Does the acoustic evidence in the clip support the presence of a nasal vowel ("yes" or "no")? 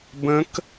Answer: yes